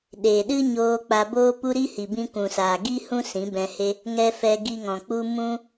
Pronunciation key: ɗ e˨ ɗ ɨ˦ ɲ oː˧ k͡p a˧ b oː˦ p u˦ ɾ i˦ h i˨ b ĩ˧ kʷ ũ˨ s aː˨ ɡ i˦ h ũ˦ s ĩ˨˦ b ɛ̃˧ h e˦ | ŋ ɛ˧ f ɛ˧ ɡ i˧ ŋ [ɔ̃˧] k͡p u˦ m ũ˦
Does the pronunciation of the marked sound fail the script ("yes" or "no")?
yes